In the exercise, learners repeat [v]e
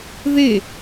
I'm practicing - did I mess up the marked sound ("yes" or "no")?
yes